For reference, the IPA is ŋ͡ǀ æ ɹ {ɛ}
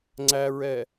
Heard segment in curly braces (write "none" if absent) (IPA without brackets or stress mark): ɛ